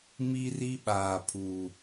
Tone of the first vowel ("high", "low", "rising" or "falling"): high